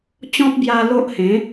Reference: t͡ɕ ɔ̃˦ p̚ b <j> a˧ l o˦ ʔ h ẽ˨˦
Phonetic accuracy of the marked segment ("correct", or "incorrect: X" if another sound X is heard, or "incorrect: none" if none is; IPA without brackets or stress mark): correct